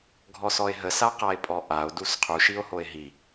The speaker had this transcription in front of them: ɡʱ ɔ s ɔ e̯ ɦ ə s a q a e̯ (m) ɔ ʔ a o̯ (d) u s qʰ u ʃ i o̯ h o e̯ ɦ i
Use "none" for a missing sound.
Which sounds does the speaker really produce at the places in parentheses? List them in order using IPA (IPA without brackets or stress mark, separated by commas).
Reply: pʼ, d